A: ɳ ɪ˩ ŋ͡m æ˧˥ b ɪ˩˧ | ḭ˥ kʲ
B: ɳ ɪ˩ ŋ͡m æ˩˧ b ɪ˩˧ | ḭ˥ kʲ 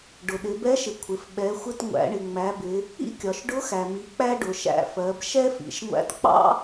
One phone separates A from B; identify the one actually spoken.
B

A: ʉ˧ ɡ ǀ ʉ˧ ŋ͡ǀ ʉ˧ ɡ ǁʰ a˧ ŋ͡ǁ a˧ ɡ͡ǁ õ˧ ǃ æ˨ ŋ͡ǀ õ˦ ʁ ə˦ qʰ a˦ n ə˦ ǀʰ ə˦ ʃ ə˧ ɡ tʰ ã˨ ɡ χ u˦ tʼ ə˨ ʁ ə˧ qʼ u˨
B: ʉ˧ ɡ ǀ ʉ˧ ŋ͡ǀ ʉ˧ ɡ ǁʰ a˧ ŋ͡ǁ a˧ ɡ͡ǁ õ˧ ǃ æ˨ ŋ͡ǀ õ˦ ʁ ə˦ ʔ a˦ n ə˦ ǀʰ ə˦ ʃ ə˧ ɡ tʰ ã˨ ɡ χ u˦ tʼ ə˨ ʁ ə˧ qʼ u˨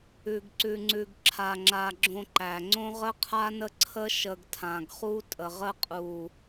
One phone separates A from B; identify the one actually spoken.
A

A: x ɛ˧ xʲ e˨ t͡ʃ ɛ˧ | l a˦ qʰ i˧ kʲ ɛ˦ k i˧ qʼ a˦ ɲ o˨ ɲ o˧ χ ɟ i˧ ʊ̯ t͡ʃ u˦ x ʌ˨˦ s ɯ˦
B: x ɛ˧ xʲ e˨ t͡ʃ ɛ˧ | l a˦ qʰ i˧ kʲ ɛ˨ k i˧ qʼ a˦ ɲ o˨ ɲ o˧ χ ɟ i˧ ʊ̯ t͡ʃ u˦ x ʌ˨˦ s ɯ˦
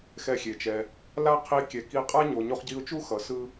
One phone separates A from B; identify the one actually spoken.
B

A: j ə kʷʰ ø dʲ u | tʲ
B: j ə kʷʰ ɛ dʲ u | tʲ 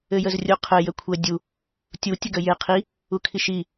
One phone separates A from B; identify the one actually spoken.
B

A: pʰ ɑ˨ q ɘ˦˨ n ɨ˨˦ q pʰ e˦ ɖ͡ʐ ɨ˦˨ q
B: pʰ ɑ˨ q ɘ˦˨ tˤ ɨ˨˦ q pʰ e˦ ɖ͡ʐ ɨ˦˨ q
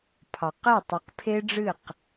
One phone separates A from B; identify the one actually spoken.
B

